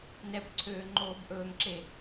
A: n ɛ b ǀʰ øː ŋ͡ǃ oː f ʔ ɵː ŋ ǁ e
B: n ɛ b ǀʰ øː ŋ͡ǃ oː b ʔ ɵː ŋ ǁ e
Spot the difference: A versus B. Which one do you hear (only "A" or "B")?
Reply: B